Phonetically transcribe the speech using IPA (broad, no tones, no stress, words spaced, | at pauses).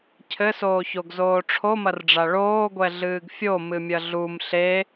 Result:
cʰɘsoːçoɡzoː ʈ͡ʂʰomɐrɖ͡ʐa ɭoːɡʷɛɮɨːɡ fʲomɨmʲɐ ɮum ɬe